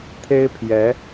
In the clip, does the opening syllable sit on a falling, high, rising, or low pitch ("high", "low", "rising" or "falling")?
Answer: high